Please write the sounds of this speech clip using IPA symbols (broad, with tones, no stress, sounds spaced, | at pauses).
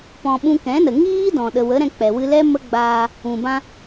p ɔ̃˧ ɓ ũ˧ k ɛ̃˨˦ n ə˨ ŋ iː˦ d ɔ̃˨ ɗ ə˨ w ə˨˦ ɾ ɛ̃˧ k͡p ɛ˨ w ɨ˧ l ɛ˦ m ə˦ ɡ͡b aː˧ | ũ˨ b ã˧